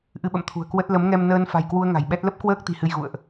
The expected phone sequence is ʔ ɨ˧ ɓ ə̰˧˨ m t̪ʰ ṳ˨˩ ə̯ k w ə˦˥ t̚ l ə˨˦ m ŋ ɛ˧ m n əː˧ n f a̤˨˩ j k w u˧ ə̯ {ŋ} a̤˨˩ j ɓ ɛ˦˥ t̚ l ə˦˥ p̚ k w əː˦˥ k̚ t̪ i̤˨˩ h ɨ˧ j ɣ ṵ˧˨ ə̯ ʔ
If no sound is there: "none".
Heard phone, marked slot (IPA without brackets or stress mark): ŋ